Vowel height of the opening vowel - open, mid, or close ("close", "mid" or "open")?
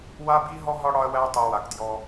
open